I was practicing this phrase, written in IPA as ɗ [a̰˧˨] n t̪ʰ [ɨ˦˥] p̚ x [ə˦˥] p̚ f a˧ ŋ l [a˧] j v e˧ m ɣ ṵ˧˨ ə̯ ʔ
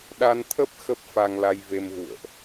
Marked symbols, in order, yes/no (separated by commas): no, no, yes, yes